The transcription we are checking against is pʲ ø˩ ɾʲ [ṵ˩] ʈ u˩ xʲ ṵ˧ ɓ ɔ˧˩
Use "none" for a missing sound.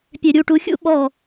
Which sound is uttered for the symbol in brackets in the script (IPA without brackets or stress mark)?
u˩